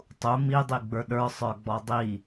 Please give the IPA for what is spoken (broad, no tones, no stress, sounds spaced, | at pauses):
tˤ u m i dˤ i ɡ͡b ə˞ ɗ ə˞ sˤ ə˞ ɡ͡b ɔ dˤ i